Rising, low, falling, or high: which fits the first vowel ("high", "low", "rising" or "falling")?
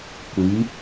rising